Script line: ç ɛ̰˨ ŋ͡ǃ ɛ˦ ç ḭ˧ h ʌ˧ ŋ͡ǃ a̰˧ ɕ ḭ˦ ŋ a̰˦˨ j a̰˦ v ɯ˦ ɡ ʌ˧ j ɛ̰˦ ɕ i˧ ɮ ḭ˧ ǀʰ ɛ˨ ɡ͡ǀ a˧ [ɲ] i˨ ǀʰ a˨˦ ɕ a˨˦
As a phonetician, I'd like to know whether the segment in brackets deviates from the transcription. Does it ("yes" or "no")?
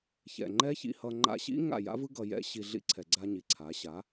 no